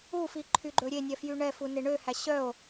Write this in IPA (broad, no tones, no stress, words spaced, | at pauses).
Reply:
ufi ǃʰyɡ͡ǃɵɾʲenʲɛ fjyɳɛfu neɳøhæ ɕœo̯